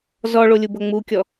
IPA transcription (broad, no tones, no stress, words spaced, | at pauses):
zɔɭolʲubɤ ŋ͡mukʲɔ